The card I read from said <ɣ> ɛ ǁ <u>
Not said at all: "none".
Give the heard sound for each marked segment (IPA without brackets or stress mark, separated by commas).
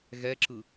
ɣ, ɯ